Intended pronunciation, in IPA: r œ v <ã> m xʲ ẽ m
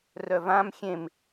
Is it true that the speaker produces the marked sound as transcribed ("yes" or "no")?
yes